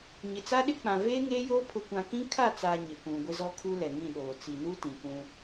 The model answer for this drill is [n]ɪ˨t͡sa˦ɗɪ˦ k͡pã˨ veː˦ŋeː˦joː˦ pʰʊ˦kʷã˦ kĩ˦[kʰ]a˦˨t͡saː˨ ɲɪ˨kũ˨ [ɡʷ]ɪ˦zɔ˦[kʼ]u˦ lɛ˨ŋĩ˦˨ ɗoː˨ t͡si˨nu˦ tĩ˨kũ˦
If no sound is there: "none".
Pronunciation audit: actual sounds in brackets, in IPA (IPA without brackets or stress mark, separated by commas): ɲ, kʰ, ɡʷ, kʰ